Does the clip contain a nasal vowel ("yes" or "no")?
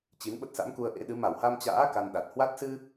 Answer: no